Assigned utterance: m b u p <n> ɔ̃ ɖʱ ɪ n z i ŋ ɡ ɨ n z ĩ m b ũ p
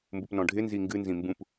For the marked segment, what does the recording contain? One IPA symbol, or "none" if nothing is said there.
n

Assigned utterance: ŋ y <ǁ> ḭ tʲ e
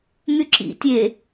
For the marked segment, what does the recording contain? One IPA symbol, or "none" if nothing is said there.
ǁ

